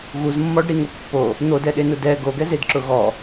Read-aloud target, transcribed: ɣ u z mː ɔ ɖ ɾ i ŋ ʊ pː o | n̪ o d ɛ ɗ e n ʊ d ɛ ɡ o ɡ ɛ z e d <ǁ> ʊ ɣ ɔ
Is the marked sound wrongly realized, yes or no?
no